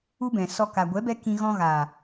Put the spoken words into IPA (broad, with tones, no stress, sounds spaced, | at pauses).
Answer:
u˦ b ɛ̃˨ s ɔ˧ k a˨ ɡʷ ɛ˨˦ b ɛ˧ k ĩ˧ ɣ ɔ̃˧ ɣ aː˨